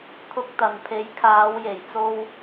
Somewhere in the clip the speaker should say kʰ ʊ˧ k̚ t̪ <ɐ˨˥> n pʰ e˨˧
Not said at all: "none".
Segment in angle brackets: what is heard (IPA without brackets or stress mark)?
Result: ɐ˨